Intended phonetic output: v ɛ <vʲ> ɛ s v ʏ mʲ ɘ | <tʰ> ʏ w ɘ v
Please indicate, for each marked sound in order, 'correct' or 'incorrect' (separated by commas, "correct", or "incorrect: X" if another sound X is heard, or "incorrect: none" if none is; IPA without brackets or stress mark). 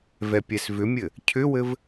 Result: incorrect: pʲ, incorrect: cʰ